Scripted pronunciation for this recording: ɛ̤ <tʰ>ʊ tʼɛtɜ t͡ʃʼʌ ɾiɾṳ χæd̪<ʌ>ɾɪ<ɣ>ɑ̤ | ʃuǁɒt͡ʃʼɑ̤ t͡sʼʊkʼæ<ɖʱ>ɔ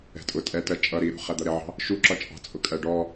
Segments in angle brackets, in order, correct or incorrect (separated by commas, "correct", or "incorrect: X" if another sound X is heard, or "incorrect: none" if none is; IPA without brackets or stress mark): incorrect: tʼ, correct, incorrect: ʕ, incorrect: ɖ